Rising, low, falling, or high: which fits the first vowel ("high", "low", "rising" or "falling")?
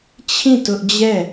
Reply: falling